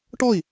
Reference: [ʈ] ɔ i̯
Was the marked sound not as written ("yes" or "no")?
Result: no